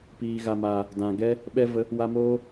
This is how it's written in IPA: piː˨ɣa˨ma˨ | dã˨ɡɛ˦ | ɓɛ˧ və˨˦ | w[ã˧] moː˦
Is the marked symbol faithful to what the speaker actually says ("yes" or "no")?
no